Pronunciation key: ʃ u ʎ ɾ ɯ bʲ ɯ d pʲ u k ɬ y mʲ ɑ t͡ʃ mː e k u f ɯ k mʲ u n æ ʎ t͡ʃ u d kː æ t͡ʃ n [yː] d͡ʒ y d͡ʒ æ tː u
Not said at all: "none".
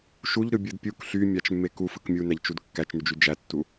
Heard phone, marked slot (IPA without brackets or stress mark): y